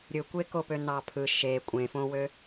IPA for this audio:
ɾʲ ɯ kʷ e k o p ø n ɑ pʰ ɯ ʃ e kʷʼ ẽ f õ w ø

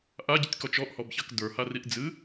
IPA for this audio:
ʔ a ɟ ə tʲ k ɔ t͡ʃ ɔ ʔ h ɔ b ç a k d ə˞ h a r i ʔ d͡z ɨ

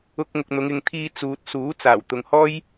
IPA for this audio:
ʊ˧ k̚ ŋ ʊ˨ k̚ n̪ ʊ˨˧ ŋ ɪ˨ ŋ t̪ʰ iː˧ t͡s uː˨ t̚ s uː˨˥ t͡s aː˨˩ w t̪ ʊ˨ ŋ h ɔː˥ j

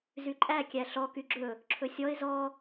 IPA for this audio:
z y ǃʼ æ kʲ æ ɬ ɔ k y ɡ͡ǁ ɵ | ǁʰ ɵ sʲ ɔ ɪ̯ z ɔ

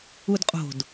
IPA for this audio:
u d qʼ o̤ d

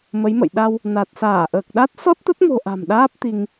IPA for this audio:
m ə˨˦ j m ə̰˧˨ j ɗ a˧ w | n a˨˩ t̚ s aː˧˩ ʔ əː˨˩ k̚ ɗ a˦˥ t̚ s ɔ˦˥ t̚ t̪ ə˦˥ t̚ m o̤˨˩ ʔ a̤˨˩ m ɗ aː˦˥ p̚ t̪ i˧ ŋ

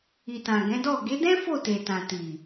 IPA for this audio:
i˨ t ã˨ ɡ ɛ̃˨˦ d ɔ˦˨ ɡ e˨˦ d ɛ̃˦ f o˦˨ t e˨ t ã˨ t i˨

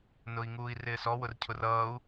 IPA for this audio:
n ʊ i̯ ŋ uː i̯ r ɪː s ɔ w ʊ r cʰ ʊ r ʌː u̯

